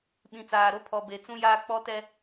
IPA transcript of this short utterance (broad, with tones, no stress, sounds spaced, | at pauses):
ɓ ĩ˨ t͡s aː˨ ɾ o˦ pʰ ɔ˨ b e˨ t͡s ũ˦ j aː˦ k͡p ɔ˦ t ɛ˦